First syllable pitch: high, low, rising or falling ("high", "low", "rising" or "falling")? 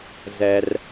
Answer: low